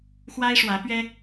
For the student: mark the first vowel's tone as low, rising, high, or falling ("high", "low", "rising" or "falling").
high